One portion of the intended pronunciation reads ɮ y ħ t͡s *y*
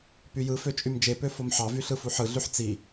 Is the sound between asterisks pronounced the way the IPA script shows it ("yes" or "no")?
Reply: no